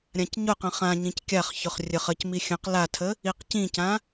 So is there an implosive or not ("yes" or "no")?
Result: no